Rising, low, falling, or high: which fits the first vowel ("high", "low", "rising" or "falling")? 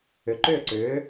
rising